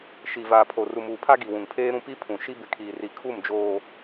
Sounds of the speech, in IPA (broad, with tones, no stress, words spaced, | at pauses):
ʃi˨vaː˨ pʰo˨ ru˨muː˨pʰa˦ ɡi˨wũ˨ŋpʰeː˦ɾũ˦ pi˦pʰũ˨ ʃi˦bɪ˨kʰiː˨ ri˨kʰu˦˨md͡ʒoː˨